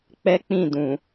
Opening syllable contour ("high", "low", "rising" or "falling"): high